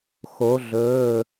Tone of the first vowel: rising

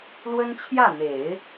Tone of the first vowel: high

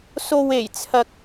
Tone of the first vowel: low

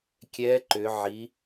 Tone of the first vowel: rising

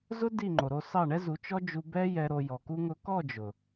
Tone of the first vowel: high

